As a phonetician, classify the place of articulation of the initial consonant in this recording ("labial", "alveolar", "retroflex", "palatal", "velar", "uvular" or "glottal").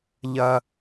palatal